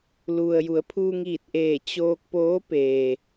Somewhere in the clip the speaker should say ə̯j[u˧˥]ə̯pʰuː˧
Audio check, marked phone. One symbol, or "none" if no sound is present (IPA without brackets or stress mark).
u˩˧